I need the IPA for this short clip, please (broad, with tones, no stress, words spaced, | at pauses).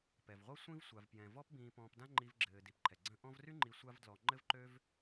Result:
pɛ˩vʁʷɤ˥ sʷĩ˥vsʷa˨v pjɛ̃˩ vɔ˦pbĩː˨pɔ̃ː˨pdã˦ ŋ͡ǃi˨vɡ͡ǁɘː˩di˩p ǃʰɛ˩ɡ͡ǀə̃˦ ʔɔ̃˥v ry˦ŋ͡ǃi˨ sʷa˦vdlɔ˨ŋ͡ǃɘ˥v ǃø˦v